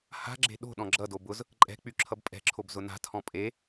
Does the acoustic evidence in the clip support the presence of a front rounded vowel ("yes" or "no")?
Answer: yes